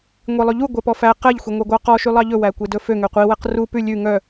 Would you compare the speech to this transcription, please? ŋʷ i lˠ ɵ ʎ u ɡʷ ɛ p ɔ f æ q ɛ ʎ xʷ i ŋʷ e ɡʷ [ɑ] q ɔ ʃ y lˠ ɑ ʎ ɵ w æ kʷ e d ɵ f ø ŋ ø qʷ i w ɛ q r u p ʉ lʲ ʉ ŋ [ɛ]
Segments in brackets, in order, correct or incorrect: correct, incorrect

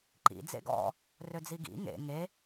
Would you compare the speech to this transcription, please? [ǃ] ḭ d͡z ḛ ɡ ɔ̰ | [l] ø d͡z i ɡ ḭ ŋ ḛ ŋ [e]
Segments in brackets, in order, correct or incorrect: correct, incorrect, correct

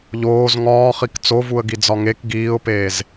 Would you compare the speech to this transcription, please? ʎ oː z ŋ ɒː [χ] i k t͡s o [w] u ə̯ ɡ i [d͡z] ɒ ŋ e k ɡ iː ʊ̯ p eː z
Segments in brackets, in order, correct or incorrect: correct, incorrect, correct

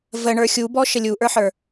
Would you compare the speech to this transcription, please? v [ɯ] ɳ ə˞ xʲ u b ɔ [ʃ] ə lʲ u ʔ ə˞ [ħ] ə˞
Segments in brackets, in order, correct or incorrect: incorrect, correct, correct

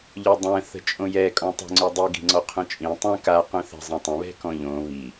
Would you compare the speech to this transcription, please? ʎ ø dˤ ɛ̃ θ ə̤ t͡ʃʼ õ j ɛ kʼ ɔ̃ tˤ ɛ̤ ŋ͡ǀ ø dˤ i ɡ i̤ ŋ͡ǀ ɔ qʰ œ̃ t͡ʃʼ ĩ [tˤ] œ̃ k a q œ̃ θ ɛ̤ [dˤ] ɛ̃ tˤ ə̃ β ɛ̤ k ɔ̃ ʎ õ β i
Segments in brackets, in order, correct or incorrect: correct, incorrect

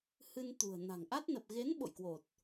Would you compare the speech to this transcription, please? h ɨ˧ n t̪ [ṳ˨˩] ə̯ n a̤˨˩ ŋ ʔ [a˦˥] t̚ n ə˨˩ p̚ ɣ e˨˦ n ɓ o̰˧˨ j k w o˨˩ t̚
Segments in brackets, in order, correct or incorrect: correct, correct

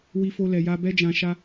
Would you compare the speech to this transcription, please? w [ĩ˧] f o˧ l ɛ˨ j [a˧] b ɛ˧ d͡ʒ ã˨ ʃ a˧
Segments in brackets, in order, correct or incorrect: incorrect, correct

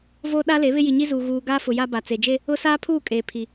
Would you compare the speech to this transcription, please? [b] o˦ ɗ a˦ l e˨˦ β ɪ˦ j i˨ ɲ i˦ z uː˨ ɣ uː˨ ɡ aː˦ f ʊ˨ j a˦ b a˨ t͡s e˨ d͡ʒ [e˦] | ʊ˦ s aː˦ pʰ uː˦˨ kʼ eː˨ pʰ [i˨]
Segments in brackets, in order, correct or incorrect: incorrect, correct, correct

